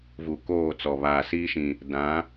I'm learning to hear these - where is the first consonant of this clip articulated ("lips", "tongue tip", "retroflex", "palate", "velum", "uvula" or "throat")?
lips